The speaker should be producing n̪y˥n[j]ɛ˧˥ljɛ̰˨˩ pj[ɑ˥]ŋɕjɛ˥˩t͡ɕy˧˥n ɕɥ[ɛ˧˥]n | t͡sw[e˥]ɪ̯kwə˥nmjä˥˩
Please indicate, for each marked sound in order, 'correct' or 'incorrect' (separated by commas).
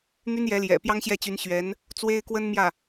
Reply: correct, correct, correct, correct